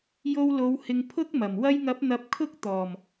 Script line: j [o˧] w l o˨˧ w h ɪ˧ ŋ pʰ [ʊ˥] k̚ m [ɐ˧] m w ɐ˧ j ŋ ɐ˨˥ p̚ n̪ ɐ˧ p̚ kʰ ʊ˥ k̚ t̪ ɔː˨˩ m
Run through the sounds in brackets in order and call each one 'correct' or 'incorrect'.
correct, correct, incorrect: ɐ˨˩

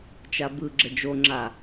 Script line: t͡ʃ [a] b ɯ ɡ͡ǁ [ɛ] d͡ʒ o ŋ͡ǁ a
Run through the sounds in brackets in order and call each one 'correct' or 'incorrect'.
correct, incorrect: ə

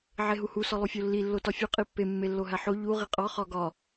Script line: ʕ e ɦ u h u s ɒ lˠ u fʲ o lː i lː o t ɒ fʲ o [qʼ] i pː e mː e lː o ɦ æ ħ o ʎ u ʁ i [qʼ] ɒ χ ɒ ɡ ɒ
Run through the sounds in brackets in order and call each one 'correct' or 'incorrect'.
correct, correct

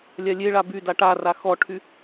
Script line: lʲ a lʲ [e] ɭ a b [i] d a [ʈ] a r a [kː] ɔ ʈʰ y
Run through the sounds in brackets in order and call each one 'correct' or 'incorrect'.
correct, incorrect: y, correct, incorrect: x

